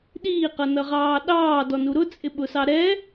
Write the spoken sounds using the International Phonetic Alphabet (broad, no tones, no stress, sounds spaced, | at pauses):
ɗ iː q ʌ n ʌ ʁ ɑː ɗ ɑː d ɔ n u ɾ ʊ t͡sʼ ɪ ɓ ʊ s ɑ ɾ ɛ